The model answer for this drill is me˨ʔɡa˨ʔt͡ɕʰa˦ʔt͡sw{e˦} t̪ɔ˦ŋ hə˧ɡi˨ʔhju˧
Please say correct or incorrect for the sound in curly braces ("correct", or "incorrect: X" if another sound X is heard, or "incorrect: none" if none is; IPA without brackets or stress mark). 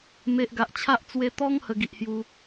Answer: incorrect: e˧